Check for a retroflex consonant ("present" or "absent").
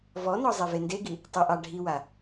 present